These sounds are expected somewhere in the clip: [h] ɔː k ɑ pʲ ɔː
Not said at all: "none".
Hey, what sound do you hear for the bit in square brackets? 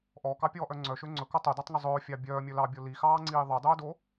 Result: ʔ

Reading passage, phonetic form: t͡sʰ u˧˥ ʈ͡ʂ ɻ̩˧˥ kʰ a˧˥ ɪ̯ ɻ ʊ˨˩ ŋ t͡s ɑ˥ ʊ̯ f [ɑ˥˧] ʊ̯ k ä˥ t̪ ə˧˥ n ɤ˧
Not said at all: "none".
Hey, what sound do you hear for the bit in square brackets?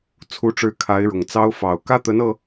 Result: ɑ˨˩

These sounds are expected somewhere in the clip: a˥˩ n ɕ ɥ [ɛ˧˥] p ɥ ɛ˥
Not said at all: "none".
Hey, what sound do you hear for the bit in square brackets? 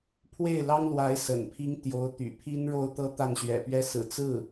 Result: ɛ̰˨˩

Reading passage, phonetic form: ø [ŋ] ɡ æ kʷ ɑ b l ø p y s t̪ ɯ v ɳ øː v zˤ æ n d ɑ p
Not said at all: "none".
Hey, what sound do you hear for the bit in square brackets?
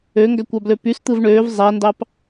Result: ŋ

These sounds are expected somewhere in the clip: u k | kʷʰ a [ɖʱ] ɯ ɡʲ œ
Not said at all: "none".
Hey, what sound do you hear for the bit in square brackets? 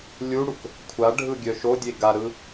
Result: ɖʱ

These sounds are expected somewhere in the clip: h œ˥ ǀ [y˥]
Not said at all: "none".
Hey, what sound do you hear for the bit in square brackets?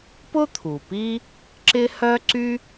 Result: y˥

